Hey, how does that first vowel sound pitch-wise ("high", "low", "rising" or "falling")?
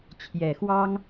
low